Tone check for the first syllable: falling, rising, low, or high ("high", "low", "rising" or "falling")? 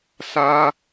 high